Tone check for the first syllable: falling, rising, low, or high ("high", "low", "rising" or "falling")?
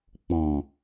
low